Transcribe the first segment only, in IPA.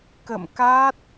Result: k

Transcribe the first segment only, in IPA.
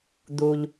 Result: d̪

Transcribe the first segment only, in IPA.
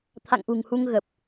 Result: t̪ʰ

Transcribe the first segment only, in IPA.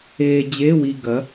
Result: eː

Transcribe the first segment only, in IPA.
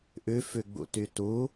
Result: ʔ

